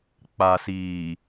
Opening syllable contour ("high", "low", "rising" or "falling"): low